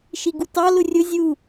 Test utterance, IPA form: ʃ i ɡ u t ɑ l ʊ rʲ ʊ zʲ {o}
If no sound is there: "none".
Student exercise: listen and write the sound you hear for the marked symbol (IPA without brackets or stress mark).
u